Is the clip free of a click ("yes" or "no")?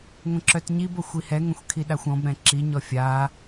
no